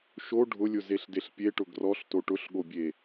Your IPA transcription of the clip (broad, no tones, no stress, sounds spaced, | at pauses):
ʃ o ɖʱ ʊ lʲ ʊ z e ɬ d e ɬ pʲ e ʈ ʊ ɡ r ɔ ɬ t o ʈ ʊ ɬ ɠ o bʲ e